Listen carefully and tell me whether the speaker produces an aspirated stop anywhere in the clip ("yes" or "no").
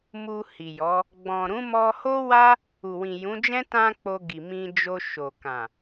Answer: no